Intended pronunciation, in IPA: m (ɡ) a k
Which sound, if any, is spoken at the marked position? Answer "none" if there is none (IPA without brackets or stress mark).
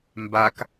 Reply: b